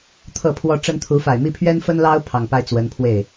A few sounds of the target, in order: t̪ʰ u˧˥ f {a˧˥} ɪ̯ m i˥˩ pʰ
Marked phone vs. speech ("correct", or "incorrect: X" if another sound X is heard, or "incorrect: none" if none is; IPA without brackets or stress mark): incorrect: a˨˩